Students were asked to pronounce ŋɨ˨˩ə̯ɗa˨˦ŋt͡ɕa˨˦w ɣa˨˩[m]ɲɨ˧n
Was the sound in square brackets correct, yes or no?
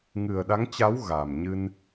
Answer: yes